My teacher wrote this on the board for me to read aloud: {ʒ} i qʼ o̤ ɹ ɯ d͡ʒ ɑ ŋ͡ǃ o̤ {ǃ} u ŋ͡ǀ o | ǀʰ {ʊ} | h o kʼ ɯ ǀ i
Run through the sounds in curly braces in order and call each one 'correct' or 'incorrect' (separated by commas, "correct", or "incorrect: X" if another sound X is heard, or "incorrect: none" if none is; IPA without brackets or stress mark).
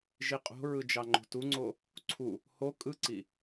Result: correct, incorrect: t, incorrect: u